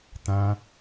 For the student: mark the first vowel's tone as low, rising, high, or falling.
high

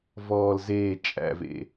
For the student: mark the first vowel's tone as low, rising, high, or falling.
low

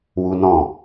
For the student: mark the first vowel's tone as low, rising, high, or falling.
high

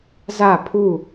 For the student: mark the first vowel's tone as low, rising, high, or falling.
falling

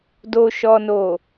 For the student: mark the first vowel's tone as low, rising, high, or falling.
low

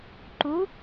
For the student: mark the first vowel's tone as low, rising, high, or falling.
rising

